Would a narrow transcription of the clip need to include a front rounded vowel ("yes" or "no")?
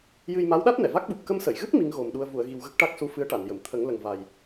no